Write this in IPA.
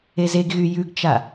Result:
e z e ɡ ɣ y j ʉ ɡ t͡ʃ a

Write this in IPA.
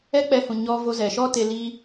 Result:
ɛ˦ k͡p ɛ˧ h ũ˨ ɲ ɔ˧ v o˧ z ɛ˨ ʃ ɔ˦ t e˧ l i˧

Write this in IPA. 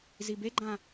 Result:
z i b e ɡ͡ǃ ã

